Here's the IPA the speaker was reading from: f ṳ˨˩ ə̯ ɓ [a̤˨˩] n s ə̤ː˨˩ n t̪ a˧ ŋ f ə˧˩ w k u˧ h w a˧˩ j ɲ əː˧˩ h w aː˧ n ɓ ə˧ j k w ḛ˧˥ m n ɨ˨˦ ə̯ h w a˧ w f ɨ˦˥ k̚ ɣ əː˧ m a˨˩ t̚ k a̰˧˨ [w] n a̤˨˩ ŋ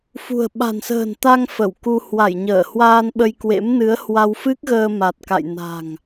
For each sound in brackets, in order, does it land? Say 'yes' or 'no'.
yes, no

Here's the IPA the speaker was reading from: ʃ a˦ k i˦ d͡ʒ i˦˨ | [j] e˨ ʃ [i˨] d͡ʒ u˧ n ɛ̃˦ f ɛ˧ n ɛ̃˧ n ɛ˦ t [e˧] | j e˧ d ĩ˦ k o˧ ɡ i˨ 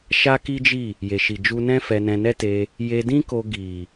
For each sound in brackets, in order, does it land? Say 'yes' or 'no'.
yes, yes, yes

